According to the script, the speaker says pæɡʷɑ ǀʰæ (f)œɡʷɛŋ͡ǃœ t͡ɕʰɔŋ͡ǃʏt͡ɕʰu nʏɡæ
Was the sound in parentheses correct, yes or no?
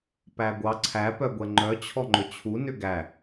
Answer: no